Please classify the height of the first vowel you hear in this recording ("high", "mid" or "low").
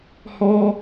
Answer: mid